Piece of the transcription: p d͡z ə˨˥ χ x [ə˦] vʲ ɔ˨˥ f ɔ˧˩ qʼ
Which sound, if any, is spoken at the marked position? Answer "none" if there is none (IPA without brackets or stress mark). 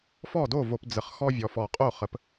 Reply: ɔ˦